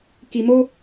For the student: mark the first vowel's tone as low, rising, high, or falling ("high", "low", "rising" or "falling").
low